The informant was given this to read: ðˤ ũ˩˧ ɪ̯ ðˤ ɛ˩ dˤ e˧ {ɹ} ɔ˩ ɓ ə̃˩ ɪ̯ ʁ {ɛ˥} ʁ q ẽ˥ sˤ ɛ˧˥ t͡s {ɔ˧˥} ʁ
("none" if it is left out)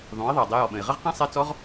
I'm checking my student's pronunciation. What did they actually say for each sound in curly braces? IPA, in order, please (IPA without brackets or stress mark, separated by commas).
j, ə˥, ɔ˧˥